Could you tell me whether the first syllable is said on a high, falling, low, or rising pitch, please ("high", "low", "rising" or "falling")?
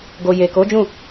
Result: low